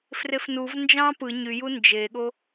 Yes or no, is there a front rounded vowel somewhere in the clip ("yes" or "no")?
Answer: yes